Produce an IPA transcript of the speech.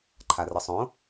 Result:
ǃʰarɤsˤõ

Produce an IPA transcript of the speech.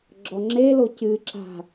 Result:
ɡ͡ǁɔŋ͡ǁelo cɨǁa̤

